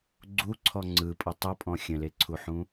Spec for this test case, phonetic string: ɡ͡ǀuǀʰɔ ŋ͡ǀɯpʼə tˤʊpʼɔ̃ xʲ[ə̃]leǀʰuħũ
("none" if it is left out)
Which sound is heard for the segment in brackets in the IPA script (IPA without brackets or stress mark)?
ə̃